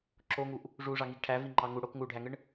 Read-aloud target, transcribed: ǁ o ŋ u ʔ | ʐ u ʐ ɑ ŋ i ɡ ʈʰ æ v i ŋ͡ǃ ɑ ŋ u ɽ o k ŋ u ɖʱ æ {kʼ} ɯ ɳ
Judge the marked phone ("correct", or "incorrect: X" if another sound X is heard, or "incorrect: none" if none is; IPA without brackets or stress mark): incorrect: ŋ